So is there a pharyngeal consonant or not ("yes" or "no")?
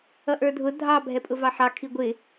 yes